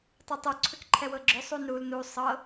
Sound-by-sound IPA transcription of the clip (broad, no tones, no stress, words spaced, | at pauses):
tˤɤtˤo ǀʰʏkǃʰɛwɤɡ͡ǁʏ sˤunɾul nu sˤɤ